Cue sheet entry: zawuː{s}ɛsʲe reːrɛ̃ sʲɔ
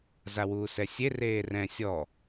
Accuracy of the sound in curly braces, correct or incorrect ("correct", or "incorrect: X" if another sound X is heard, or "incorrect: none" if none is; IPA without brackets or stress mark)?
correct